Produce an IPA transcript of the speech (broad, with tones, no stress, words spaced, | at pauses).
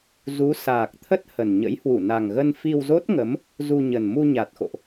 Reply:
zu˨˦ saː˨˩k̚t̪ʰə˦˥t̚ hə˨˩n ɲə̰˧˥jhwu˧˩ na˨˩ŋɣə˧n fi˧wzo˦˥t̚ŋə˨˦m | zu˧ɲə˨˩n mu˧ɲa˨˩t̚xo̰˧˨ʔ